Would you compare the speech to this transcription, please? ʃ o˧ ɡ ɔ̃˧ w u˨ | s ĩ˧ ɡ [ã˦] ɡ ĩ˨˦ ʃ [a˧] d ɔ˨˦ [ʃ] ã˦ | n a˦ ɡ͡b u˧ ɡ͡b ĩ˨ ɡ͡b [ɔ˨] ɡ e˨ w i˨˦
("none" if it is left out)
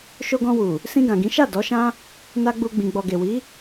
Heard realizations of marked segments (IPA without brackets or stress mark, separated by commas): ã˨, a˦˨, ʃ, ɔ˨